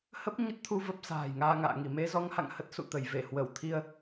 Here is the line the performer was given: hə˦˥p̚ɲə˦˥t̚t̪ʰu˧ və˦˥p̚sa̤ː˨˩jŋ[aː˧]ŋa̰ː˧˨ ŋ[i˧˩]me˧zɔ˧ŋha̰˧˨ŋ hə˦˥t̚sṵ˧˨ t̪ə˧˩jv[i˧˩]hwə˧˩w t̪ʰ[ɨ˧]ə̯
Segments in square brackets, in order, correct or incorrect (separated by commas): correct, correct, incorrect, incorrect